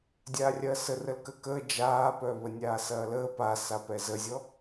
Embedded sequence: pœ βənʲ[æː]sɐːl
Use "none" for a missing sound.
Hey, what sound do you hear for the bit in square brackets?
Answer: aː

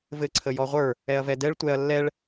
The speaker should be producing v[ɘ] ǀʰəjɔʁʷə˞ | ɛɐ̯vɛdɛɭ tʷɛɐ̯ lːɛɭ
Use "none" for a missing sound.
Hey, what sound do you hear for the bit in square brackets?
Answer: ɘ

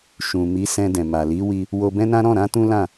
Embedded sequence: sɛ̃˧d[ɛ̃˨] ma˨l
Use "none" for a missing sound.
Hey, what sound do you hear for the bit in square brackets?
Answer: ɛ̃˨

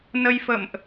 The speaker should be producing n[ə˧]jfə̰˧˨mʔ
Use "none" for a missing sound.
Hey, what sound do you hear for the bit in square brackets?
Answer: ə˧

